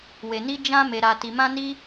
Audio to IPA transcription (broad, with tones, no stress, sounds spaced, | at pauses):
w e˨ n i˧ d͡ʒ ã˦ m e˧ ɾ a˧ t i˧ m ã˦ n i˦